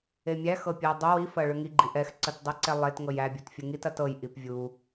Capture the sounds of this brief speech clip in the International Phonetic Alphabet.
e mʲ æ x ɤ pʲ ɤ j dˤ ʏ w i f ɐ ɭ ʏ ŋ i ɡ͡ǃ i ʔ ɛ x ǀ ɐ t dˤ i ǀ ɛ lˠ e t ŋ ɤ j æ bʲ u t fʲ ə ŋ i t ɐ t ɤ j ʔ i p vʲ u

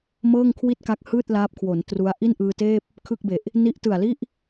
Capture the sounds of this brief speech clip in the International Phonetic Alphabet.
m ɤː˥˩ ŋ kʰ w i˥˩ t̚ k a˦˥ k̚ h ɯː˥˩ t̚ l aː˦˥ p̚ kʰ w o˩˦ n t r u˦˥ a̯ ʔ i˥˩ n ʔ ɯː˧ t eː˥˩ p̚ | kʰ ɯ˥˩ k̚ b e˨˩ ʔ | n i˦˥ ʔ t ɯ˨˩ a̯ l i˥˩ ʔ

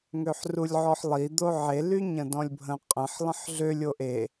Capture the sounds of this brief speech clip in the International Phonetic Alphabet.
ŋ ø ħ r u lʲ ʕ ɔ ħ lˠ i d̪ o ʕ e l y ɲ ə̃ d ɔ̃ lʲ bʱ ə̃ qʼ ə̃ ħ lˠ ə̃ ħ ɮ ø lʲ o ʔ e

